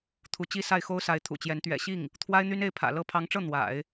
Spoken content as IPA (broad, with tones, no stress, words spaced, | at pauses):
t̪ʰu˧˥t͡ɕi˥sa˥˩ɪ̯ xo˥ʊ̯sa˧˥ɪ̯ t̪ʰṵ˨˩t͡ɕjɛ˧˥n t̪ɥɛ̰˨˩ɕi˥˩ŋ | t̪ʰwa˥ɪ̯n̪y˥ne˥˩ɪ̯pʰä̰˨˩ lɤ˧˥pʰɑ˧˥ŋʈ͡ʂɤ˥˩ n̪wa̰˨˩˦ɪ̯